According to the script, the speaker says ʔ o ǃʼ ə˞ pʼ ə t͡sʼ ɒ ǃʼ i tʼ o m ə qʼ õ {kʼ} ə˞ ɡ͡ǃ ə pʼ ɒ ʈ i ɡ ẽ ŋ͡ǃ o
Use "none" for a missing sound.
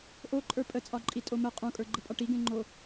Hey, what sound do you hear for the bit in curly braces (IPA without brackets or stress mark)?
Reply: kʼ